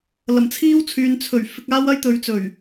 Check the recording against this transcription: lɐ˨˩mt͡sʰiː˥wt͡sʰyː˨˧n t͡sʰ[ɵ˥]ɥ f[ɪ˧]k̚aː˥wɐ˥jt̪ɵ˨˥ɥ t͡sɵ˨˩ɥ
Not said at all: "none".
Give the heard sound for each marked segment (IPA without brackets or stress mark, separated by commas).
ɵ˨˩, ɪ˧